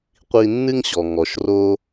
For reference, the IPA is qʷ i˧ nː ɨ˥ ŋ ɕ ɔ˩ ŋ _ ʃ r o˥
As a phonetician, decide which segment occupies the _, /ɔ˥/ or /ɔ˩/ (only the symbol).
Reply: ɔ˩